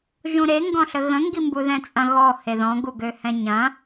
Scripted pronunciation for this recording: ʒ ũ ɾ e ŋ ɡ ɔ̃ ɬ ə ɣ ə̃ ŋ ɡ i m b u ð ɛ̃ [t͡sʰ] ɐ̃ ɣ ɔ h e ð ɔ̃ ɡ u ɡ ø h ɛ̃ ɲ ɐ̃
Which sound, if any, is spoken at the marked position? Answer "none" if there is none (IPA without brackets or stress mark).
t͡sʼ